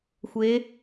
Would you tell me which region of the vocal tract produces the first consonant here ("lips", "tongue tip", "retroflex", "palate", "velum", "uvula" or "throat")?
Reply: velum